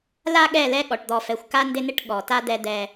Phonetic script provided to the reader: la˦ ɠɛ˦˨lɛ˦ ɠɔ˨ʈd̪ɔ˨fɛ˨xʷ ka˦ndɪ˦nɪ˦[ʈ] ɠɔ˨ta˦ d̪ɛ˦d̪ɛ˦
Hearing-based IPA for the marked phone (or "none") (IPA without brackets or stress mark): ʈ